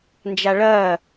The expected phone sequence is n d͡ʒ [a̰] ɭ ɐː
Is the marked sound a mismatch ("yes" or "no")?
yes